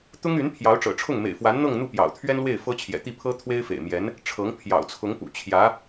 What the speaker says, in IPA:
t̪ ʊ˥ ŋ y˧˥ n pʰ j ɑ˧˥ ʊ̯ ʈ͡ʂ ɤ̰˨˩ ʈ͡ʂʰ ʊ˥˩ ŋ m ḛ˨˩ ɪ̯ f w a˧˥ n n̪ ɤ˥˧ ŋ n̪ u˥˩ p j ɑ̰˨˩ ʊ̯ t̪ʰ ɥ ɛ˥ n l w e˥˩ ɪ̯ f ɤ˥ t͡ɕʰ j ɛ̰˨˩ t̪ i˥˩ pʰ ɤ˥ t̪ʰ w e˥ ɪ̯ f ḛ˨˩ ɪ̯ m j ɛ˧˥ n | ʈ͡ʂʰ ɤ˧˥ ŋ pʰ j ɑ̰˨˩ ʊ̯ t͡sʰ ʊ˧˥ ŋ p ṵ˨˩ t͡ɕʰ j ä˧˥

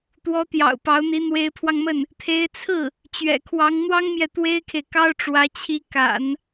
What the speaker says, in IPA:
t̪ w ɔ˧˥ t̪ j ɑ̰˨˩ ʊ̯ p ɑ˧˥ ʊ̯ n̪ i˧˥ n̪ w e˧˥ ɪ̯ pʰ w ɑ˧ ŋ m ə˥˩ n | t̪ʰ e˧˥ ɪ̯ t͡sʰ ɹ̩˥˩ | t͡ɕ ɥ ɛ̰˨˩ kʰ w ɑ˧˥ ŋ n̪ w ɑ˥ ŋ m j ɛ˨ t̪ w e˥ ɪ̯ kʰ e˨ ɪ̯ k ɑ˥ ʊ̯ ʈ͡ʂ w ä˧˥ t͡ɕʰ i˧˥ k a̰˨˩˦ n

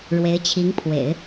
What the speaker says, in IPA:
ɻ w e˧˥ ɪ̯ t͡ɕʰ i˧˥ ŋ pʰ w ḛ˨˩˦ ɪ̯

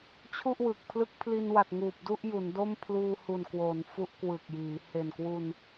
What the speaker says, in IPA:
t͡ɕʰ u˥˩ ʔ w ɯ˨˩ k̚ pʰ l ɯ˦˥ k̚ pʰ l i˧ n w a˨˩ t̚ ŋ uː˨˩ p̚ d u˥˩ ʔ j u˩˦ n d o˥˩ m pʰ l uː˧ h u˨˩ n k w oː˩˦ n f u˦˥ ʔ k w ɯ˨˩ k̚ j iː˩˦ h e˨˩ n k w u˧ n

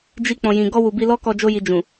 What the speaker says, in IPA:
d͡ʒ i˧ k͡p ɔ̃˨ j ĩ˨ ɡ ɔ˧ w u˨ b i˧ l ɔ˦ k ɔ˧ d͡ʒ o˦ j i˧ d͡ʒ ũ˨

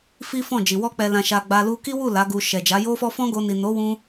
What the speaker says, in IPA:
f i˦ f ɔ̃˦˨ d͡ʒ i˨ w ɔ˧ k͡p ɛ˨ l ã˨ ʃ a˨ ɡ͡b a˧ l u˧ k i˦ w u˦˨ l a˨˦ ɡ u˧ ʃ ɛ˨ d͡ʒ a˨˦ j o˦ f ɔ˦ f ɔ̃˦ ɡ o˧ n i˨ n o˨˦ w ũ˧

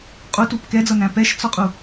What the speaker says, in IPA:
qʼ u t u p k ɛ d͡z ʌ n æ̃ p ɛ ʃ t͡s ɒ qʼ u

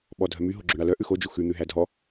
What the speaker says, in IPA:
ɓ ɔ dʱ œ m y ɦ o ɡ͡ǁ ɵ ɳ ɑ l œ ʔ ʉ x o d͡ʒ u x ʉ n̪ ʉ ɦ æ dʱ ɔ

